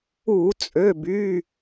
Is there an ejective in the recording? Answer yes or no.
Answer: yes